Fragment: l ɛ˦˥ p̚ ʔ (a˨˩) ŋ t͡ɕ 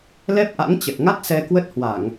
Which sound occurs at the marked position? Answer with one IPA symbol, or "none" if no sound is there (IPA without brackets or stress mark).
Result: a̰˧˥